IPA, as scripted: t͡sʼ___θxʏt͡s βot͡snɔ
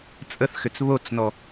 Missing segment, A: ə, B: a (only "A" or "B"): A